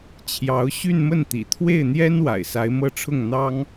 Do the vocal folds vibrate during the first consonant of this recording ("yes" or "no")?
no